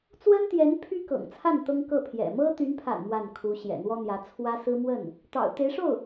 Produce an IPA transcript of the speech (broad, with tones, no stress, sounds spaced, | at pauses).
t͡s w ə˥ n t̪ j ɛ˧˥ n pʰ y˥ k ɤ̰˨˩ ŋ t͡sʰ a˥˩ n t̪ ɤ˥ ŋ k ɤ˥˩ pʰ j ɛ̰˨˩ m ɤ˥ t̪ y˧˥ n pʰ a̰˨˩ n m w a˥˩ n kʰ u˧˥ ɕ j ɛ̰˨˩ n̪ w ɔ˥ n̪ j ä˧˥ t͡sʰ w ä˥ s ɹ̩˥ m w ə˥˩ n | t̪ ɑ̰˨˩ ʊ̯ t̪ e˧˥ ɪ̯ ʂ o˥˩ ʊ̯